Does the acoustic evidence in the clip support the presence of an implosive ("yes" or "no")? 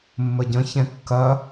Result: no